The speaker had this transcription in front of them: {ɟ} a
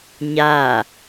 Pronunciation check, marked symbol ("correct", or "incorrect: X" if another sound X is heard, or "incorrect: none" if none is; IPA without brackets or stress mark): incorrect: ɲ